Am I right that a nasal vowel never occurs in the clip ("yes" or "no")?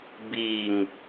yes